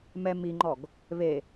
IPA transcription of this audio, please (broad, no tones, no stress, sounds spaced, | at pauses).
m ɛ m i ŋ͡ǃ ɔ ɡ | β e